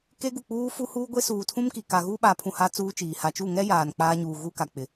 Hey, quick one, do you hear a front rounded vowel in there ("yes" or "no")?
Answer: no